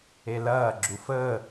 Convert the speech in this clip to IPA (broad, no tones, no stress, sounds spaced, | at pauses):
e l ɐː ɡ͡ǁ u f əː